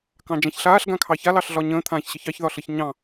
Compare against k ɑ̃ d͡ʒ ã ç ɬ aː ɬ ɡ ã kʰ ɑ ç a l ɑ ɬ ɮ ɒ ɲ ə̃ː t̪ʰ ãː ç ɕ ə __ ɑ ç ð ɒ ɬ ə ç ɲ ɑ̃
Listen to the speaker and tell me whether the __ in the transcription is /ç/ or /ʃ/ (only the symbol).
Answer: ç